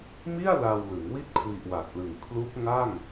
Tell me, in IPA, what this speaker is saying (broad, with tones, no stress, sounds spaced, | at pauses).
m i˥˩ a̯ l a˧ w l ɯ˩˦ ŋ w i˦˥ t̚ kʰ w i˨˩ ʔ w a˨˩ t̚ l ɯ˨˩ ŋ kʰ l u˦˥ k̚ ŋ a˥˩ ŋ